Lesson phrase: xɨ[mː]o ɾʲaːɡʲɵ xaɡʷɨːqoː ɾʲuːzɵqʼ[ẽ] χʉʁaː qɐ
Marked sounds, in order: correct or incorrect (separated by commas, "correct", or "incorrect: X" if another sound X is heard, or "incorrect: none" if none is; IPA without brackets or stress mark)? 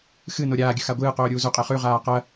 incorrect: n, incorrect: e